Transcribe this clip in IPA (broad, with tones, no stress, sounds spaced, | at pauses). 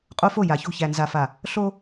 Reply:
qʼ o˦ f o˦˨ j a˨ ç o̤˦˨ ç æ˨ n z a˨ f a˨ | ɬ o˦